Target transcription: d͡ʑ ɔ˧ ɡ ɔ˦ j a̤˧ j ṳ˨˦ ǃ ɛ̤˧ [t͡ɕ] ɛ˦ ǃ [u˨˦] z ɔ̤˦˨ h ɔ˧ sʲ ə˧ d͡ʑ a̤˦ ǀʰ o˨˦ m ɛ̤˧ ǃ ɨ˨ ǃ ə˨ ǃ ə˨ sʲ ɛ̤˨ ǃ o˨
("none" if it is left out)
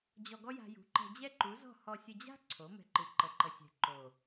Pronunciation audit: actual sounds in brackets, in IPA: d͡ʑ, u˨˦

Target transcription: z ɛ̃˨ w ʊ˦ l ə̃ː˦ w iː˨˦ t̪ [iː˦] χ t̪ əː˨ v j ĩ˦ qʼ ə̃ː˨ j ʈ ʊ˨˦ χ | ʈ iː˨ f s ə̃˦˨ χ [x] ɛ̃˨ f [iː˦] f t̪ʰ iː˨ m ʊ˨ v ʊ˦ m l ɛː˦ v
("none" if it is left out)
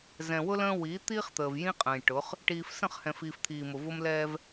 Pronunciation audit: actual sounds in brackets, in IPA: iː˦, h, iː˨

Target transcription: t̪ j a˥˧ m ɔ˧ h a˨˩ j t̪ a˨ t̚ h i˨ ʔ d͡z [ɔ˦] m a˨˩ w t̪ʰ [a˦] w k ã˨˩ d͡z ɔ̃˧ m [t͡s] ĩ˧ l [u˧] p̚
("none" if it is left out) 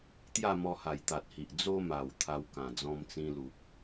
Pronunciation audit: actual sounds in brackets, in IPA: o˦, a˧, t͡s, u˨

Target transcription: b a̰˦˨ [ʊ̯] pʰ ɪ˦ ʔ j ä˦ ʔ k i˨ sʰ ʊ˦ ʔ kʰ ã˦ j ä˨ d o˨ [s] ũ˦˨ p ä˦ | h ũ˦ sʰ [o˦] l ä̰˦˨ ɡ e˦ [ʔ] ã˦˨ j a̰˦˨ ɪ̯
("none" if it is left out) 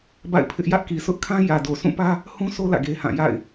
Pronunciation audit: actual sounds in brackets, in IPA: ɪ̯, s, o˦, h

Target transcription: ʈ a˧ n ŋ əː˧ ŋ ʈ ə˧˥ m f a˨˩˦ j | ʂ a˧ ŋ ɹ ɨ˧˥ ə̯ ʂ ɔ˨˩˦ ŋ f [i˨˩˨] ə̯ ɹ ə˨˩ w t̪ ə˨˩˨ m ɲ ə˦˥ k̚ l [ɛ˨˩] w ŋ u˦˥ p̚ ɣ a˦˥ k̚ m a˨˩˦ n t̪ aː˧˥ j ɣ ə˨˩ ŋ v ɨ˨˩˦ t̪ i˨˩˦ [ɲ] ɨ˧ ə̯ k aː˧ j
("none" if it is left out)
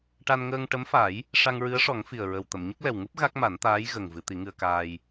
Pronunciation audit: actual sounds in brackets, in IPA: i˨˩, ɛ˨˩, ŋ

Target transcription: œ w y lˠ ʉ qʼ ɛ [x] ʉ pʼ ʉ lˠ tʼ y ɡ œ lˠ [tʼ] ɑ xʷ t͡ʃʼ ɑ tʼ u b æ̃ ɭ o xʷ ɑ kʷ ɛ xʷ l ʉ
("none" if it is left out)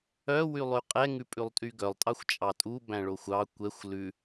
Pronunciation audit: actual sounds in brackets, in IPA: ŋ, tʼ

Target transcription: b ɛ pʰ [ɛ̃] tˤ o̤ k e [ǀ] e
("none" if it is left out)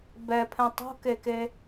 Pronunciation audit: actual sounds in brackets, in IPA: ɛ̃, k

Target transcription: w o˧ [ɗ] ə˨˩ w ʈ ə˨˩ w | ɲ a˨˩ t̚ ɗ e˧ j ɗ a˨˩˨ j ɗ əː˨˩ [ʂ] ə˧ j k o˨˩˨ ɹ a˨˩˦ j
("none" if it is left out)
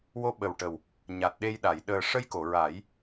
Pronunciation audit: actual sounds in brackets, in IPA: ɓ, ʂ

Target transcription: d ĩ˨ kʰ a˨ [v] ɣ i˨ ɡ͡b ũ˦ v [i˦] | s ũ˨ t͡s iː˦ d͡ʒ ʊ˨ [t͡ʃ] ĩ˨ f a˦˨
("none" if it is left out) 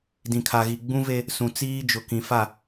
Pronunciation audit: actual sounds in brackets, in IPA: none, e˦, k

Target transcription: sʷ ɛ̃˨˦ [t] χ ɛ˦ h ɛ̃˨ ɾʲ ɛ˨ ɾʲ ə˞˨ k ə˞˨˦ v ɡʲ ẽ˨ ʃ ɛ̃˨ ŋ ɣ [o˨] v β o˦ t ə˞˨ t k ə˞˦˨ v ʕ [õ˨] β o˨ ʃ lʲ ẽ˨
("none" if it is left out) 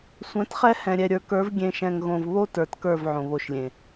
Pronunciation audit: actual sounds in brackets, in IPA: t, õ˨, õ˨

